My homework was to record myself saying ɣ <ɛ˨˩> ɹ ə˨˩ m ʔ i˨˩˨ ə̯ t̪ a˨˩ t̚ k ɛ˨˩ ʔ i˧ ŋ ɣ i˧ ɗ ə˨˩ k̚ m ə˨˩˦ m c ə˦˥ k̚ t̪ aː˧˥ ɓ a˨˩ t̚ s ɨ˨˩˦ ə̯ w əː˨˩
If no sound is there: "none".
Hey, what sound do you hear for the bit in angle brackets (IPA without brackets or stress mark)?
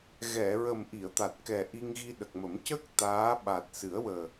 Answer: ɛ˨˩˨